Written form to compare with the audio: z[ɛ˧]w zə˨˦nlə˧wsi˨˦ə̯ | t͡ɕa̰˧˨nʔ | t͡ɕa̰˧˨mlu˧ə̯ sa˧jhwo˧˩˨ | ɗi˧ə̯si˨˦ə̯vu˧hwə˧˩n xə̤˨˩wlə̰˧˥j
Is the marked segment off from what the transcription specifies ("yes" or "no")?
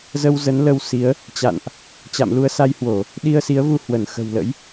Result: yes